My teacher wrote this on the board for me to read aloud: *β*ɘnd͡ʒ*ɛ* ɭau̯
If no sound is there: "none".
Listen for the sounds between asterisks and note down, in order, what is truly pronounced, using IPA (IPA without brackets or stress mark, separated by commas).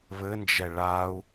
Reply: β, ɛ